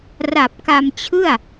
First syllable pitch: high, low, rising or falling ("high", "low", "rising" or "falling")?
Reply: low